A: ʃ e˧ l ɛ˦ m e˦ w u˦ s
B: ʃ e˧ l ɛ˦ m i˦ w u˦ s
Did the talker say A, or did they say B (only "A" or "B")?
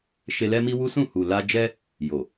B